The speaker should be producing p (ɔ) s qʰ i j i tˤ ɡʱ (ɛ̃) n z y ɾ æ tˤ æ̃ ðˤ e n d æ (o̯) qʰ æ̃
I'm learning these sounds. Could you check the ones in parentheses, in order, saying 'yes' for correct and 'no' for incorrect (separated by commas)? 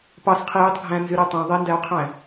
no, no, yes